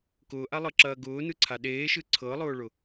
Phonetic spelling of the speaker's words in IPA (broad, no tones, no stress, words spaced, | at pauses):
kʊːʔalˠɤǁɐː ɡʊːnɯǀʰa ɗeːʃɯ ǀʰɤlˠʊːɭʊ